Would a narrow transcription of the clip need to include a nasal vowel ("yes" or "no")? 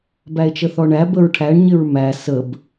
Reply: no